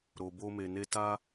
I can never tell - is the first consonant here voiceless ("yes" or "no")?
no